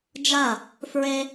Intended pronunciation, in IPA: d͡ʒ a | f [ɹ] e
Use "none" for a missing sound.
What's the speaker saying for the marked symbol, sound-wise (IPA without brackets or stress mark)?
ɹ